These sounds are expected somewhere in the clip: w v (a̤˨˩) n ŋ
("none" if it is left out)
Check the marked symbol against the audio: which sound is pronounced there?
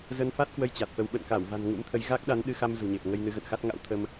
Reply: a̤˨˩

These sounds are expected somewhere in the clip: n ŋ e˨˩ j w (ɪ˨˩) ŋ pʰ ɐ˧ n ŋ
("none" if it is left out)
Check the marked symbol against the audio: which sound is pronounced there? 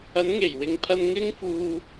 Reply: ɪ˨˧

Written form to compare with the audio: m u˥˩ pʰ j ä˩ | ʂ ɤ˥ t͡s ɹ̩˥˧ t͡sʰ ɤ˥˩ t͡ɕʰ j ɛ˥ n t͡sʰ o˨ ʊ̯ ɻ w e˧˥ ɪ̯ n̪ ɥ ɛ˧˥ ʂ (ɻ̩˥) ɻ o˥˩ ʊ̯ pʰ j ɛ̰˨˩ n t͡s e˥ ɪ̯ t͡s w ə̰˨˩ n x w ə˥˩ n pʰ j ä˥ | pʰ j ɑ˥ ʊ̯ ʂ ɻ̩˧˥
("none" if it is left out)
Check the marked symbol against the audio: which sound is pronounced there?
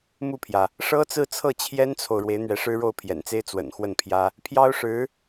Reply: ɻ̩˥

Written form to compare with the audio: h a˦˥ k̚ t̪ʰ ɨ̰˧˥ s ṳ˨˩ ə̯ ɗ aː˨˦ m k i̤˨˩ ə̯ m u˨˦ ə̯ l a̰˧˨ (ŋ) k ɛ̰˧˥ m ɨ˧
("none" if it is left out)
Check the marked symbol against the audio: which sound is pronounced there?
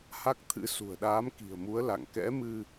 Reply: ŋ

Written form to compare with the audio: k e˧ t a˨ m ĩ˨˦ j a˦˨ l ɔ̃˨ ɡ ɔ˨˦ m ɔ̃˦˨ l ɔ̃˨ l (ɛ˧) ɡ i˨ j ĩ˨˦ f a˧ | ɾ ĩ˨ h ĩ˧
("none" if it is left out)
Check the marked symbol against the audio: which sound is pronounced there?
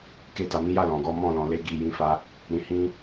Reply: e˧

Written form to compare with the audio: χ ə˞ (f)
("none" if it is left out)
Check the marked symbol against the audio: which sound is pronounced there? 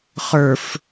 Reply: f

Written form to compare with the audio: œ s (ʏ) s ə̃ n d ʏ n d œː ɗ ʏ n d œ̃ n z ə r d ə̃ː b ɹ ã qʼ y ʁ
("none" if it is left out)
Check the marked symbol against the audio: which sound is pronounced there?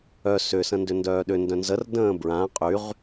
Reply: ʏ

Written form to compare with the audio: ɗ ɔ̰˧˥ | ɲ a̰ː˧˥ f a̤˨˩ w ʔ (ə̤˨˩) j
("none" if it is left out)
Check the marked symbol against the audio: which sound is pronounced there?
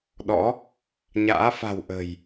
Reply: ə̤˨˩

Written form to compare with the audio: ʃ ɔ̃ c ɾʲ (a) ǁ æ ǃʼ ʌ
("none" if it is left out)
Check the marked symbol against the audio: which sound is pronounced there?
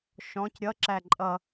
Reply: ʌ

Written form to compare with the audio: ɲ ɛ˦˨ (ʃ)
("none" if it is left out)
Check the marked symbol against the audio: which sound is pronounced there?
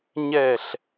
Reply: ɬ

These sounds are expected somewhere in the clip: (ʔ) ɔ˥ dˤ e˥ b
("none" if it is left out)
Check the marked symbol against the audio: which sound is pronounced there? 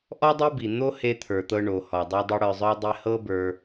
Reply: ʔ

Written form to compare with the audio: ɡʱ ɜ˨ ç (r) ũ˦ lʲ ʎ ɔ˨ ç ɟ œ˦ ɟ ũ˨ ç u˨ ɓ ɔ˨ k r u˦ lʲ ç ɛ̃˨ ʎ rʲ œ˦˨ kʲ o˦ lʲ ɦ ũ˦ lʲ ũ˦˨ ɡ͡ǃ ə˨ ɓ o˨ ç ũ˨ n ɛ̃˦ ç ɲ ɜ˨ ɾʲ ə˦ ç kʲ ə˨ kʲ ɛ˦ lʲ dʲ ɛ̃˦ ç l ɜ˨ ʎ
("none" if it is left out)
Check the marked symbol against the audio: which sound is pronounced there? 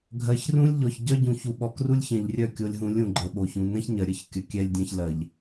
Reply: r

